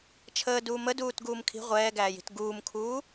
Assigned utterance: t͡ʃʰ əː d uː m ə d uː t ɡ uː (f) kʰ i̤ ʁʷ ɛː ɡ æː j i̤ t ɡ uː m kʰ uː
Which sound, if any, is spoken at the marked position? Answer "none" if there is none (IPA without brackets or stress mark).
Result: m